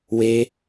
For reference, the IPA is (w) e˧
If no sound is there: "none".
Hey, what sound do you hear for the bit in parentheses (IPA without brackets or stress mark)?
w